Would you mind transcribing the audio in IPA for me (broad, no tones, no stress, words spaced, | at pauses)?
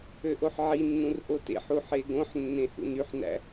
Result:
øʔoħʕinːũr ʔotḛħu ħeɡõħnːẽ hṵnyħnæ̰